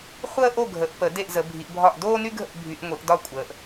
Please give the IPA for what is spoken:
χʷəː˥ʔo˥˨ɡʱə˨˩˦ʔpə˨˩˦ de˥˨ʔzə˨˦bʱi˨˦ʔbʱɒ˥˨ʔ doː˥ny˥ɡʱə̰˥˨ʔ bʱy˨˦ʔŋʷi˨˩˦ʔdɒ˥˨kʷʼəː˨˦ʔ

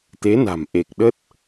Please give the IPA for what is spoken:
t̪e˨˦na̤˨˩m ʔe˨˩k̚ɗə˦˥t̚

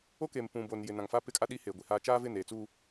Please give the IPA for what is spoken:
o˦ke˨m pũ˨boː˨njɪ˨nã˨ŋ fa˦pɪ˦kʼa˦ ɗi˦heː˨ɡʷi˨haː˦ t͡ʃaː˦vɪ˦˨neː˨t͡suː˦

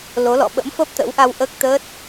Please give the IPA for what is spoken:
lo˨˦lɔ̰˧˨ ɓə̰˧˥m fəː˦˥p̚t̪ə̰˧˥wʔa˧w ʔəː˦˥k̚t̪əː˦˥t̚

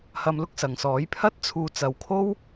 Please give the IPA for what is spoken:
hɐ˧mlʊ˥k̚sɐ˨ŋsɔː˨˥j pʰɐ˥t̚t͡sʰuː˧ t͡sɐ˨˧wkʰo˥w

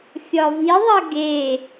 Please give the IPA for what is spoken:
fʲɒviðˤʌ ɡe

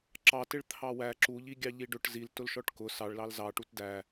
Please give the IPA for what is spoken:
ǁɑtɪɭ t̪ʰɑwæ ǁuʎiɡʲɑ ʎiɖʊʈ ziltʊlʃɔʈ kʊ sɑɭlɑl zɑ ʈutdæ

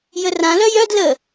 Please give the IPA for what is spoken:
jərãlœ jœd lə

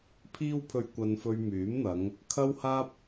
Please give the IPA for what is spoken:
pʰiː˧wpʰɵ˨ɥ kʷɐ˧nfɵ˧ɥmyː˨˥mn̪ɐ˨˧ŋ | kʰɐ˥whaː˥p̚

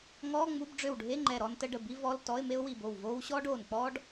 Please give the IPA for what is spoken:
ŋɔː˧˥˧ŋ͡mu˧˥˧bɖ͡ʐø˧˩wɖʱe˧˥˧ ŋ͡ǃɛ˧˩ɾɔ˥ntə˥ɖə˧˩ bi˥vɔ˧˥˧l tɔ˧˥˧ɪ̯me˥ʊ̯wi˧˩bo˧˩w voː˥w ɕɔː˥ɖoː˧˩nk͡pɔː˥ɖ

